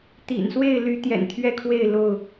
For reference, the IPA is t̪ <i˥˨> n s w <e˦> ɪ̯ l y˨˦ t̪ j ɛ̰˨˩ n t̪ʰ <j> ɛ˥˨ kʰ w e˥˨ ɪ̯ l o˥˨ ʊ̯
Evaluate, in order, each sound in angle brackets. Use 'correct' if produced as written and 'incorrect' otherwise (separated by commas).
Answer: incorrect, incorrect, incorrect